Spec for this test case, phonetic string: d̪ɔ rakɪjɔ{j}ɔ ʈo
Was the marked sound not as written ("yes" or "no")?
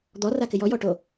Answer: no